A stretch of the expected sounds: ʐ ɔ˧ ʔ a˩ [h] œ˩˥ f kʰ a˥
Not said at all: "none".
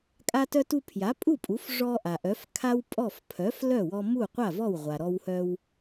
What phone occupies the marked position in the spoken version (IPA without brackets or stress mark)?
ʔ